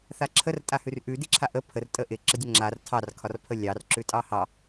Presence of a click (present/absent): present